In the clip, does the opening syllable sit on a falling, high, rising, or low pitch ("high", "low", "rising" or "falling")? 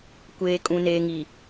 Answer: low